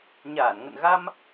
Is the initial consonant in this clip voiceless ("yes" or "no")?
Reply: no